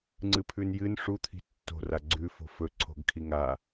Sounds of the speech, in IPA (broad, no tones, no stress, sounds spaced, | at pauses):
ŋ͡ǀ ɨ pʰ ʉ n j ɨ n ʂ u t̪ʰ i̤ tː o̤ r a ɡ͡ǀ ʉ f o̤ f ɵ ǀʰ o̤ ɡ kʰ i ŋ a